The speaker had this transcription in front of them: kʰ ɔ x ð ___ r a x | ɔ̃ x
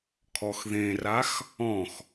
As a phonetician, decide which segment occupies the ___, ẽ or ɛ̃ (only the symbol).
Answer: ẽ